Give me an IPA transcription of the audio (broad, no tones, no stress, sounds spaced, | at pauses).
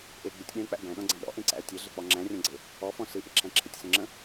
ʔ e ɡ͡b ɨ tʲ ɗ ẽ ə̯ k͡p æ̰ b æ̃ ɗ ɔ̃ ɡ͡ǀ æ̃ ɗ ɔ̰ ʔ ẽ ǀ æ̰ ə̯ tʲ e ɮ e k͡p ɔ ŋ͡ǁ æ̃ rʲ ɔ̃ ɡ͡ǀ e | ɔ f ɔ̃ s ɨ ʔ ɪ ǁʰ æ̃ ǁʰ ɪ tʲ s ə̃ ŋ͡ǁ ə̃